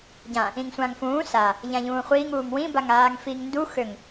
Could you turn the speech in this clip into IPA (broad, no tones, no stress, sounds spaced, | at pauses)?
ɟ ã | ĩ ŋ sʷ ã ŋ f ũː s a | ʎ ã ʎ ũː χʷ iː ŋ uː ŋ w ĩ b a ŋ aː ŋ f i ŋ n d u x ø ŋ